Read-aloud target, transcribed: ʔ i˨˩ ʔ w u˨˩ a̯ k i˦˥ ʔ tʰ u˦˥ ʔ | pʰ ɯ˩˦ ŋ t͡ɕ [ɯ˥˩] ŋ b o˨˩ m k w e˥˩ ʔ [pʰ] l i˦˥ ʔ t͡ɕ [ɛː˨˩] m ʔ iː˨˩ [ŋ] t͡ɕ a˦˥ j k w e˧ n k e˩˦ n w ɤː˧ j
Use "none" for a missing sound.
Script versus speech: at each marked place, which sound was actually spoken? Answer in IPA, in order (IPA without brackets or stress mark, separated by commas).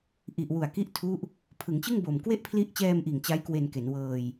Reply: ɯ˥˩, pʰ, ɛː˧, ŋ